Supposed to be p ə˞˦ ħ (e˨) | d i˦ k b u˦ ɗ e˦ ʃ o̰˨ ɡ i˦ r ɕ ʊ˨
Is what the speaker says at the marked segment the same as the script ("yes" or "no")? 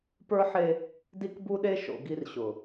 no